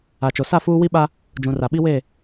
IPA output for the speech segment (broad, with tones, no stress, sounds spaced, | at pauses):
a˨ t͡ʃ o˨ s a˦˨ f uː˦ w i˦ ɓ a˦ | d͡ʒ ũ˨ r a˨ ɓ i˦ w e˦˨